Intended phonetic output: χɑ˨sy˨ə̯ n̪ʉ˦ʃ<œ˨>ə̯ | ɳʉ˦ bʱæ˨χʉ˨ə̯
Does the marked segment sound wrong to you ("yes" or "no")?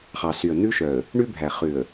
no